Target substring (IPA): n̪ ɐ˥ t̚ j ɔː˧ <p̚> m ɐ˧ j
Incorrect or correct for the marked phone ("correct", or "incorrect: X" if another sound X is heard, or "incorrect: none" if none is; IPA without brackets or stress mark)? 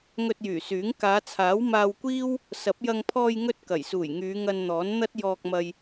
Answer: incorrect: k̚